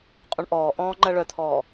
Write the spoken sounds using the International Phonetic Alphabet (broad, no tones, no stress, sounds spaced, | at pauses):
qʼ ũ ɳ ʔ ɔː ʔ ɔ̃ː ŋ͡ǃ ɜ ɭ œ t̪ʰ ɔː